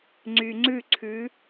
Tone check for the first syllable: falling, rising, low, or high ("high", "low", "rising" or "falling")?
low